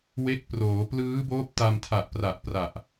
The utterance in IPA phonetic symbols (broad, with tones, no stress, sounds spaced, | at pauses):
w e˦˥ k̚ p r oː˩˦ p l ɯː˦˥ b oː˦˥ p̚ t a˧ m tʰ a˨˩ ʔ p r a˨˩ ʔ p r a˨˩ ʔ